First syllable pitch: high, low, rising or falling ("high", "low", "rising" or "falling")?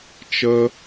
high